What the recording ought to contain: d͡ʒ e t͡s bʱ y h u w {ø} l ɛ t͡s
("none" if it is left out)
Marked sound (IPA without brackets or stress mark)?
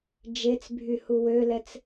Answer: ø